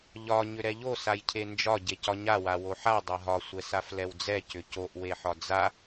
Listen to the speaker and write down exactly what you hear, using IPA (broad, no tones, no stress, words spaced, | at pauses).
ʎɒ ɲʏɾɛʎo sajcʰend͡ʒɒ ɟecɒɲa wawoħa dˤaɦɒ sʷɛsaflɛwd͡zɛ cʏcoʔ weħɒd͡za